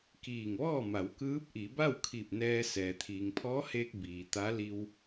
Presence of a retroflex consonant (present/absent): absent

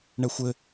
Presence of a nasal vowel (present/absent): absent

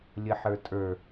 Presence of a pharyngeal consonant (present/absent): present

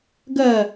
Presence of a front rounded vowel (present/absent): absent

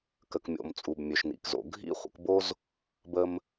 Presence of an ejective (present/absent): present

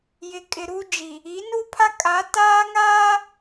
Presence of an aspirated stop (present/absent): present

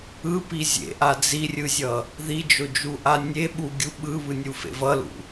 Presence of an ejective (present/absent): absent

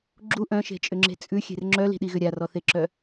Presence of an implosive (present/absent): present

